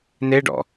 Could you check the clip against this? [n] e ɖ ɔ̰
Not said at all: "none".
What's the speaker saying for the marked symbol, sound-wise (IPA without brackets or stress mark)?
n